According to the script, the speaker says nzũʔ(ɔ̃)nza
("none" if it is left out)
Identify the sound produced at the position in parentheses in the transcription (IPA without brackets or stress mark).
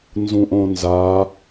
õ